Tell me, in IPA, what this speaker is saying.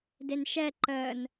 d e n ʃ ɛ ǃ ə n

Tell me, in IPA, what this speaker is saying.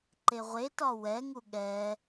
ǃ e ʁʷ e t ɒ w ɛ ŋ u ɠ ɛ

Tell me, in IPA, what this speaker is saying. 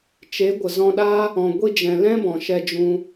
t͡ʃ e˨˦ ɡʷ ə˨ z ɔ̃˧ ɗ aː˦ | ɔ̃˨ ɡʷ i˧ d͡ʒ ɛ̃˨ l ɛ̃˦ b ɔ̃˨ ʃ ɛ˧ d͡ʒ ũ˧

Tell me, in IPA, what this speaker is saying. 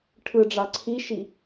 ʈʰ ɯ ɖ͡ʐ ɑ ǀʰ i ʃ i

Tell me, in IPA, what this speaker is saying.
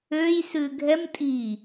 ø j s ʉ ɡʱ ɛ m tʼ i

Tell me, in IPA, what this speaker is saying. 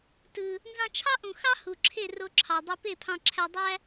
t ɯ˨ | n z ɑ̃˧ t͡ʃʰ ɑ˦ ʔ ũ˨ x ɑ˦ h u˨ ǁʰ e˦˨ r o˧ ǁʰ ɑ˨ dˤ ø˧ p e˦˨ pʰ ɑ̃˧ ǁʰ æ˧ dˤ æ˦

